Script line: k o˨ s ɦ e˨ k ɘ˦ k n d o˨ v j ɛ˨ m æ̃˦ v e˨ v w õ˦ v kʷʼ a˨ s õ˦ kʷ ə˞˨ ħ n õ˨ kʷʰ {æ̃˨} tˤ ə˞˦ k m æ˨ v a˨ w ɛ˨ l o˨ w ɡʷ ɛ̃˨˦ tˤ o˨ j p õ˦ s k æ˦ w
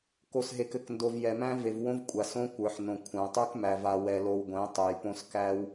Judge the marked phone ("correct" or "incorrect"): correct